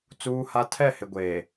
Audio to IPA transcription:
t͡s uː˦ h a˦ tʰ ɛ˦˨ h ɪ˨ ɡʷ eː˨

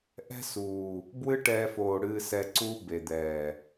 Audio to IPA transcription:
ʔ ɛ̤˦ s uː˨ | b w ɨ˦ ʈ ɛː˧ f oː˨ ɽ ɨː˧ s ɛ˧ ǀ uː˦ b e˨ d̪ ɛː˨

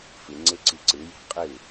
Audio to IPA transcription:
f ɨ ŋ͡ǀ e ǀ i ǀ ɨ j e̤ qʼ ɨ

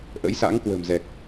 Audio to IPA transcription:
ʔ ə̰˧˥ j s a̰˧˥ ŋ k w ə̤˨˩ m z ɛ˨˩ k̚

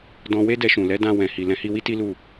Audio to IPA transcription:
d ɔ̃˧ w e˦ d ɛ˧ ʃ ũ˨ l ɛ˨˦ d ã˧ w ɛ̃˨ h i˨ l ɛ̃˨˦ h i˧ w i˦ t i˦ l u˦˨

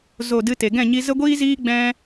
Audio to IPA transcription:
z o˦˨ d ɨ˦ t e˨ ɡ ɛ̃˦˨ ɲ i˧ z ə˦ ɡʷ iː˦ z iː˦ ɡ͡b ɛ̃˦

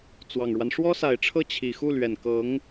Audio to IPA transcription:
t͡s w ɑ˨˩ ŋ ɻ w a˦ n ʂ w ɔ˥ s a˨˩ ɪ̯ ʈ͡ʂʰ ɤ˥˩ t͡ɕʰ i˨˩ x u˥˩ l ɥ ɛ˨˩ n k ɤ˧˥ ŋ

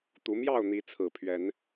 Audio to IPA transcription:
t̪ u˨˦ m j ɑ˥˨ ʊ̯ n̪ i˨˦ t͡sʰ ɹ̩˨˩ pʰ ɥ ɛ˨˦ n

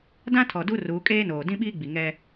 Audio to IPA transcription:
d ã˦ tʰ ɔ˨ d u˦ r uː˨˦ kʼ eː˦ n oː˨ d ĩ˦ ɓ iː˦ ɡ͡b i˨ ŋ ɛ˦

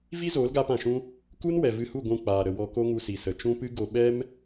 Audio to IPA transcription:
v i˦ z oː˨˦ l ɡ aː˧ p ã˨ ʃ ũ˦ | k u˦ n w ɛ˨ v ɨ˧ h u˦˨ ɡʷ ũ˧ k͡p aː˨ ɾ ə˨ w ɔ˧ k o˦ ŋ u˧ s i˨ s ə˨ t͡ʃ ũ˦ p ɨ˦ ɡ o˧ ɓ ɛ˦ m

